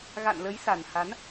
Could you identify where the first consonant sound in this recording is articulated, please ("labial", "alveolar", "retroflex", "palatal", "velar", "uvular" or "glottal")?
velar